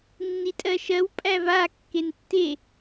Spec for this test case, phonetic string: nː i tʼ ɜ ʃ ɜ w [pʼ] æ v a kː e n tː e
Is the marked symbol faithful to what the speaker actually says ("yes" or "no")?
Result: yes